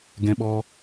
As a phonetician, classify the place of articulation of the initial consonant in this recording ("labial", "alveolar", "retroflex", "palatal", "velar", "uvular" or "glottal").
velar